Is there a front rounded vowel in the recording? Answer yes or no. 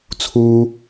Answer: no